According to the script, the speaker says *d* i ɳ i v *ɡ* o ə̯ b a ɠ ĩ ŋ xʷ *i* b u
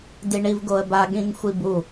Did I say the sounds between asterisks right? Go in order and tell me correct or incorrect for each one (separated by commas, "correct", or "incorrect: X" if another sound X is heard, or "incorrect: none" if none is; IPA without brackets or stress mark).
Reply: correct, correct, correct